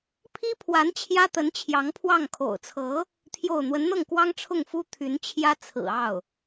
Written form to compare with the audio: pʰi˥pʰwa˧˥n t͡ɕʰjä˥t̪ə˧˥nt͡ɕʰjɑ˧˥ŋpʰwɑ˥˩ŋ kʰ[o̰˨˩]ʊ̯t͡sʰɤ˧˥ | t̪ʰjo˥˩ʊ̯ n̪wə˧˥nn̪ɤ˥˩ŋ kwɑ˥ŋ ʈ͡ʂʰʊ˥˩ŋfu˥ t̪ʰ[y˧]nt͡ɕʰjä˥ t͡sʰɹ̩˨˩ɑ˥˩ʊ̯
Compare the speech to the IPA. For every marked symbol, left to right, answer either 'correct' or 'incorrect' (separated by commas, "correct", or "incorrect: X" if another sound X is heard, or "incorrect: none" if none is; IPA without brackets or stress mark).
correct, incorrect: y˧˥